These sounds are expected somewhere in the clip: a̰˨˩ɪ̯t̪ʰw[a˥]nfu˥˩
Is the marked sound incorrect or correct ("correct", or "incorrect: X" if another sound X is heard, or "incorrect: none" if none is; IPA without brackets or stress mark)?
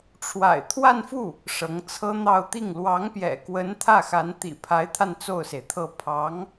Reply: incorrect: a˥˧